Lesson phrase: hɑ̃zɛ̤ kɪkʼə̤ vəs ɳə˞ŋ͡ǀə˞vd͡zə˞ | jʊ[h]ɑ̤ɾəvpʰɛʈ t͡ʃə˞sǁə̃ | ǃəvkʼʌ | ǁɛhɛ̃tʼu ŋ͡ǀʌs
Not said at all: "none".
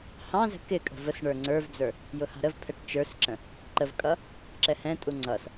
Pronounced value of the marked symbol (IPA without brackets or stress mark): h